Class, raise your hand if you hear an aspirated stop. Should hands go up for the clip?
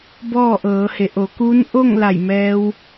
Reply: no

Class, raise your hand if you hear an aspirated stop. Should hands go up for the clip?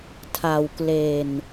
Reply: yes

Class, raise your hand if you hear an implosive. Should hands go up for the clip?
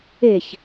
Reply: no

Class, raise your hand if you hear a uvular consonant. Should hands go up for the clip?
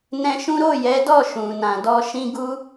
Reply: no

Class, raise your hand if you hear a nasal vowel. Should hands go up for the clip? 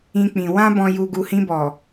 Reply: yes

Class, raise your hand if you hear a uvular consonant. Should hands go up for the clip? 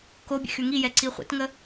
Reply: yes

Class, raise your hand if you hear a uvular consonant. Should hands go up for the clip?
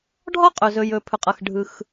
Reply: yes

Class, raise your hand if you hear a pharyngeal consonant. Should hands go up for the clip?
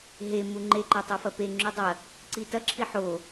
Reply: yes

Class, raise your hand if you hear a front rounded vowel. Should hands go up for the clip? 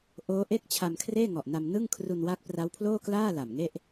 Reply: no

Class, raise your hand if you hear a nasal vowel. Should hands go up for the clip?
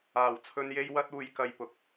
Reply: no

